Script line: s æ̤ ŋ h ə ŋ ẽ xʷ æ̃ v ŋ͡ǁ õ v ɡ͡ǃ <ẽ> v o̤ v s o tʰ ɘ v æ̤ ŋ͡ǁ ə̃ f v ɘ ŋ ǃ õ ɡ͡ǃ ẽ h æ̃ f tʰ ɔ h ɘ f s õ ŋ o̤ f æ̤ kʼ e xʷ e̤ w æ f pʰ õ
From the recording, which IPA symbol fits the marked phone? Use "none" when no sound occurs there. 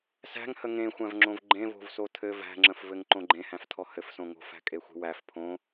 ẽ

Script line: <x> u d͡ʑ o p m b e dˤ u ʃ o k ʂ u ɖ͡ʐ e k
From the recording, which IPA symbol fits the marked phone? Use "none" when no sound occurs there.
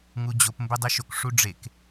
ŋ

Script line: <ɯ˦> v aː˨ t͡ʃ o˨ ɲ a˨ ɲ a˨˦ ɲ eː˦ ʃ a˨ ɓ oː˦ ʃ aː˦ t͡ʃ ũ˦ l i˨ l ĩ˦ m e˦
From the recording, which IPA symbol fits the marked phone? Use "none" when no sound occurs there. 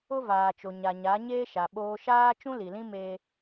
ʊ˦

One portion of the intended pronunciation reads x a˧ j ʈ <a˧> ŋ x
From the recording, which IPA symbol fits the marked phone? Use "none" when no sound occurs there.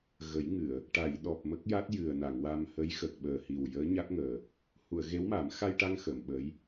a˧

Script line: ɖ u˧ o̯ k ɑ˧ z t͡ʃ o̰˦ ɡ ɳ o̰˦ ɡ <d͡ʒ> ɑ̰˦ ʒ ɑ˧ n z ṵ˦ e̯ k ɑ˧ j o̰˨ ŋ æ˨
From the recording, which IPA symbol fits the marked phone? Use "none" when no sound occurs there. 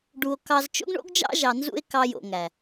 d͡ʒ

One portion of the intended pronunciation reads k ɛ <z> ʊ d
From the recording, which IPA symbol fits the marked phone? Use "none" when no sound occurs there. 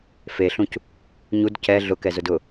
z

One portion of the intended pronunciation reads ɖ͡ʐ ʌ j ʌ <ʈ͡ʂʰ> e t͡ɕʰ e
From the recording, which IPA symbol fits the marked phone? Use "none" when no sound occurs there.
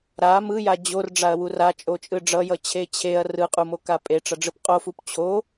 t͡ɕʰ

